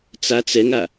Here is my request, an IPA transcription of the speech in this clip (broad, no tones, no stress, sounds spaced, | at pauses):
t͡s a t͡s ɛ ŋ a